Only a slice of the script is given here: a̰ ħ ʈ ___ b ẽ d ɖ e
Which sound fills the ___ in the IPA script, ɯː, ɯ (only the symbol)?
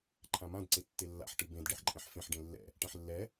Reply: ɯ